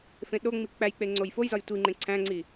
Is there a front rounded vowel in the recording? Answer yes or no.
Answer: no